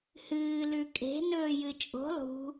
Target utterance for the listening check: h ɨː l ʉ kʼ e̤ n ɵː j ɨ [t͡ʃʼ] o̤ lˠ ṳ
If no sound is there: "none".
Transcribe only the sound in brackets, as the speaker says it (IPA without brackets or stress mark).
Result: t͡ʃʼ